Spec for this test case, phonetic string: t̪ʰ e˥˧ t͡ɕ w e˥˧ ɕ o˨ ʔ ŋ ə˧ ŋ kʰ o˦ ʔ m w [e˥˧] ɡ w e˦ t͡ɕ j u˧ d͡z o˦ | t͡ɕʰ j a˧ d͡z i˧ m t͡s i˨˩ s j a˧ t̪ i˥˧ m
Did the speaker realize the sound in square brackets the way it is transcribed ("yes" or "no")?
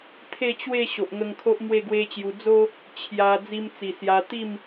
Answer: yes